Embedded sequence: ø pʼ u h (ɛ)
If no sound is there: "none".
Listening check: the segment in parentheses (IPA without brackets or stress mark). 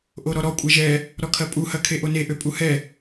ɛ